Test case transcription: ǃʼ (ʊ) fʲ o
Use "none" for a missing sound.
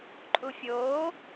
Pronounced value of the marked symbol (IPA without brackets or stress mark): u